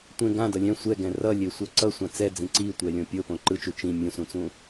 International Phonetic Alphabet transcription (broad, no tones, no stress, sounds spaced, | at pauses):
tʷ ẽ ɡ ã d ʌ lʲ ɛ̃ sʷ ɛ ɡ ɛ̃ r ʌ lʲ e sʷ ʌ ǀ ʌ sʷ ã t͡s ɛ d͡z ĩ ǀ i tʷ ɛ lʲ õ pʲ o p õ ǃ ɯ t͡ʃ u t͡ʃ ĩ mʲ ũ s ũ t͡s ũ